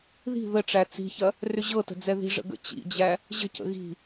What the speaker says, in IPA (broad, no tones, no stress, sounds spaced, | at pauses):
ð i̤ ð ə ʈ͡ʂ æ t͡s i̤ ç ɐ | r ʏ ʑ ɤ t ə̤ d͡z ɛ ð i̤ ʐ ə̰ ɡ ə̰ t͡ɕ ḭ d͡ʑ æ | ʑ ə̤ c ə̰ ɣ i̤